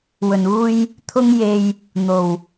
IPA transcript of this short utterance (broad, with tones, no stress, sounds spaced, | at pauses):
w ɵ˨˩ n uː˧ j | t̪ʰ ʊ˧ ŋ j e˨ j | n̪ o˨˩ w